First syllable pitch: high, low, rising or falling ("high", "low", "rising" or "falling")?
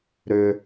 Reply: high